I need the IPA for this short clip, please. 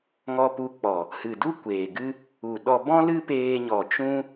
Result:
ŋ ɔ˧ p u˧ k͡p ɔ˨ | h ɨ˨ d u˦ kʷ eː˨ ɡ ɨ˦ | u˨ ɗ ɔ˧ b ɔ̃˦ l ɨ˦ p eː˧ ɲ ɔ˨ t͡ʃ ũ˦

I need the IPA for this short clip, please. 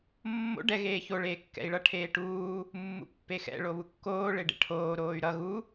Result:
mː o̰ ɖ ɛ ɣ eː ç o ɭ eː kː ɛ̰ i̯ ɭ ʌ ʈʰ eː ʈ uː | mː ṵ pː e x ɛ̰ ɭ o β u kː oː ɭ e ɖ ḛ ʈʰ oː ɾ oː y̯ ɾ ʌ ɣ u

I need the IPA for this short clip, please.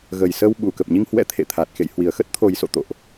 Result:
ɣ ə˨˩ j s ə˧ w ɓ u˧˩ k ə˨˩ p̚ ɲ i˧ ŋ h w ɛ̰˧˥ t̪ʰ ḛ˧˨ t̪ʰ a˨˩ t̚ x ḛ˧˨ j h w i˨˩ ə̯ x ə˦˥ t̚ t̪ʰ o˨˩ j s o̰˧˨ t̪ o̰˧˨ ʔ

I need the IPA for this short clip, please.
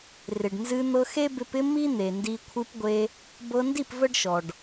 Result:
r ɪ˨ ɖ n z ɨ˧ n̪ ɤ˧ x e˦ b ɪ˧ p ɪ˦ m i˦ n̪ e˨ n d i˧ kʷʰ ɨ˧ p ɡʷ e˧ | b ɤ˧ n d i˦˨ p v ə˦ ɖ ʃ ɔ˨ ɖ

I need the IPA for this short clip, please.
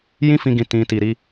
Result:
j ĩ˦ f ĩ˧ ɡ ĩ˨ t ĩ˨ t i˨ ɾ i˧

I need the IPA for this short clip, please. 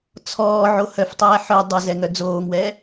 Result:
t͡sʰ ɔː ʕ o h œ f tˤ ɛː ħ œ dˤ ə z ɛ ŋ œ d͡z oː ŋ w ɛː

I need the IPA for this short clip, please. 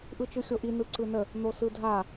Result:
ʔ ɯ t͡ʃ ɯ xʲ o ʔ i n ɯ ǀ ɯ n ə | n̪ o s ɯ dʱ a

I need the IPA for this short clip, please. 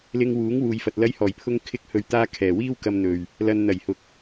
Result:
l ɪ˧ ŋ w uː˨˥ ŋ w uː˨ j f ɐ˨ t̚ l ɐ˧ j h ɔː˨˩ j pʰ ʊ˧ ŋ kʰ ɪ˧ k̚ h ɵ˨˧ ɥ t̪ aː˧ kʰ ɛː˨˩ w iː˥ w k ɐ˧ m n̪ ɵ˨ ɥ | l ɐ˨ n n̪ ɐ˨˩ j h ʊ˨˥ k̚

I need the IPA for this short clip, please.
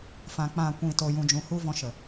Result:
f ã˨ k͡p ã˨ kʷ ĩ˨ t o˨ j ũ˨ d͡ʒ ũ˨ h u˦ v ɔ̃˧ ʃ ə˨

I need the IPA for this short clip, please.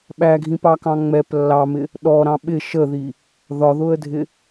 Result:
ɓ æ ɡʱ ĩ p ɑ k ɑ̃ ŋ͡m ɛ p lː ɑ m ɪ | ɗ ɔ ɾ ɑ̃ ɓ ɪ ʃ ə ð i | ð ɒ ð ʊ ə̯ dʱ ɪ

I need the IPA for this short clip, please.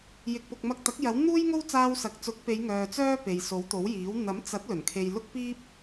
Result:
j ɪ˨ k̚ p ʊ˨ k̚ m ɐ˧ k̚ t̪ ɐ˨˥ k̚ j ɐ˨˥ w n̪ uː˥ j ŋ o˥ w t͡s aː˧ w s ɐ˨ k̚ t͡s ʊ˨˥ k̚ p e˨˧ j ŋ œː˨ t͡s œː˥ p e˨ j s o˨˥ w t̪ o˨˥ w j iː˨˥ w n̪ ɐ˨˥ m t͡s ɐ˨˥ t̚ l ɵ˨˩ n kʰ e˧ j l ʊ˥ k̚ p iː˥ p̚

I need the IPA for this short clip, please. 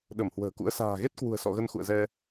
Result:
ɗ ə˧˩ m h w ə̤ː˨˩ k ṵ˧˥ ə̯ s a̤ː˨˩ ɣ e˦˥ t̚ k w ṳ˨˩ ə̯ s ɔ̰˧˨ ɣ ə˧ n x ṵ˧˨ ə̯ z ɛ˧

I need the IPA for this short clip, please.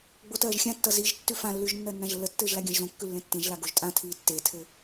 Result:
ɡ͡b o t ɜː ʒ xʲ ã tː ʌ z i ʒ tː ʉ f ã lː ʉ ʒ nː ɜ nː ã ʒ lː ə tː ɘː ʒ l a ɡʲ ã ʒ z õ kː ʉ lː ẽ tː ẽ ʒ l a ɡ o ʒ tʼ ã tʰ iː tː e tʰ ɘ

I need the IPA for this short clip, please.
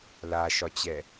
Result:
l a ʃ ɒ t͡ɕ ɛ

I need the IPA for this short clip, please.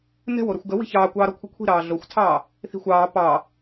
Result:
n ɛ̤ w o ɾ ə xʷ ɡ ə w i̤ ç ɑː kʷ ɑː ɾ ɔ kʷʰ i kʷʰ i̤ ɾ ɑː ɮ o xʷ tʰ ɑː | θ i̤ xʷ ɑː p ɑ

